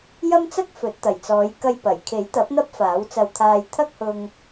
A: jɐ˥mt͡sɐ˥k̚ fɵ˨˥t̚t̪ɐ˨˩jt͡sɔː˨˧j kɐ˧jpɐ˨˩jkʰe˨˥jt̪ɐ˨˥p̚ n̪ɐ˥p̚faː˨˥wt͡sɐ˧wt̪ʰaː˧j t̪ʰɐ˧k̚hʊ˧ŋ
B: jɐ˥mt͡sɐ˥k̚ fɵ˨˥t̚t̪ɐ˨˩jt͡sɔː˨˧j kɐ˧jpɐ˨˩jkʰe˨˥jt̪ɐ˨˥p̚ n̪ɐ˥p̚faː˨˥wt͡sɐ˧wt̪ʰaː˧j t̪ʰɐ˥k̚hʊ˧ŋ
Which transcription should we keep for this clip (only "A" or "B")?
B